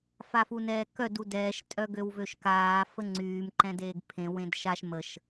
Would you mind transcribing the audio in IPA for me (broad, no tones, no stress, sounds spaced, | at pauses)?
f a f u n ɛː k œ d u d ɛː ʃ tʼ œ ɡ ø w v ø ʃ k aː f ə ŋ͡ǀ yː m ǃ ɛ̃ d eː ɡ pʰ ẽ w ẽ d ʃ a ʃ m ə ʃ